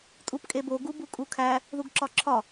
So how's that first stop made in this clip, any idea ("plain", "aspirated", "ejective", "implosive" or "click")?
ejective